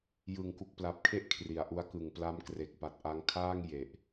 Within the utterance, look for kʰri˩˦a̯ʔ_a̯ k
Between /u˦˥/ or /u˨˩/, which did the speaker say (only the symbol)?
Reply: u˦˥